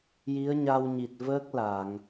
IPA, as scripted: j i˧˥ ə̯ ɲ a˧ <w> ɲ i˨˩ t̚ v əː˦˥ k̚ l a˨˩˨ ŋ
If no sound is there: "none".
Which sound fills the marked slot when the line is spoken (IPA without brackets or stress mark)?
w